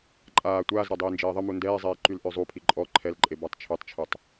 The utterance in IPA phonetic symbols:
ǃʼ aː tʷ aː z ɾ a dˤ iː n d͡ʒ eː ðˤ ə m u n d ɛː zˤ eː ǃ y l ʔ ø zˤ u pʰ i ǃʼ ɔ ǃʰ ɛ l ǃʼ e b a tˤ t͡ʃʰ ø tˤ t͡ʃʰ ø tˤ

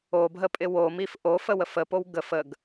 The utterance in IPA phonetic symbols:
o b ɦ ə pʼ ɪ w o m i f ʔ o f ə w ə f ə p o w ɡ ə f ə ɡ

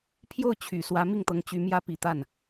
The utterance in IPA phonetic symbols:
pʰ j o˥˩ ʊ̯ t͡ɕʰ y˨˩ s w ä˧˥ m i˥˩ ŋ t̪ ɤ˧˥ ŋ t͡ɕ y˧˥ m j ä˥ p i˨˩ t̪ a˥˩ n

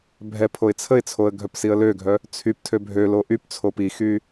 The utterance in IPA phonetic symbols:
bʱ ɛ pʰ o ɪ̯ t͡sʰ ə ɪ̯ t͡sʰ o ə̯ ɡʱ œ p s i ə̯ l ø ɡʱ œ | t͡sʰ y p tʰ ø bʱ ø l o ʔ y p t͡sʰ o p i x y

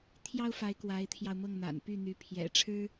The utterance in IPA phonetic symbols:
t̪ʰ j ɑ˥ ʊ̯ f a˧˥ ɪ̯ k w a˧˥ ɪ̯ t̪ʰ j ɑ˧ ʊ̯ m ɤ˥˩ ŋ n̪ a̰˨˩ n p y˥˩ n̪ y˧˥ pʰ j ɛ̰˨˩ ʈ͡ʂʰ ɻ̩˥

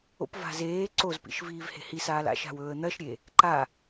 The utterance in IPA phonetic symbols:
o̰ p v a̤ z eː ǀ o z p ḭ ʃ v iː v h e̤ h i s aː l a̰ ʃ a̤ w ɵː ə̯ n̪ ɐ ʃ ɾʲ e | ǃ a

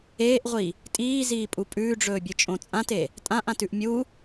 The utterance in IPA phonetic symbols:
eː ʔ ʁʷ i | tʼ iː z iː pʼ u pʼ ʉː ɖ͡ʐ ɵː bʲ ɨ t͡ʃʼ õ t͡sʼ ã t e | tʼ ã ʔ ã t ʉ ʔ mʲ u

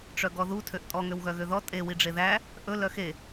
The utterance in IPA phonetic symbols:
ʈ͡ʂ œ ɡ ɔ ð u tʰ ø ʔ tʼ ɔ ŋ ø w ɣ œ ɣ ø ð ɔ tʼ e w i ɖ͡ʐ e ð æ | ʔ ɵ l œ x e

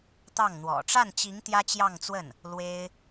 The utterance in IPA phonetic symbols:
t̪ ɑ˥˩ ŋ n̪ w ɔ̰˨˩ ʈ͡ʂ a˥˩ n t͡ɕ i˧˥ ŋ t̪ j ä˥ t͡ɕ j ɑ˥˧ ŋ t͡s w ə˥˩ n | l w e˥ ɪ̯

